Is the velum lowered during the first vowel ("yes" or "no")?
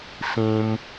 yes